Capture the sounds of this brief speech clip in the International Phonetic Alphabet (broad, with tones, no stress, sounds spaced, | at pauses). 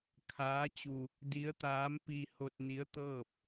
kʰ aː˧˥ t͡ɕ u˧ | d i˧˥ ə̯ t̪ aː˧˥ m p i˧ h o˧ t̚ n i˧˥ ə̯ t̪ ɤː˥˨ p̚